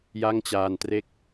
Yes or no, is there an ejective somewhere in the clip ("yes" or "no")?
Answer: no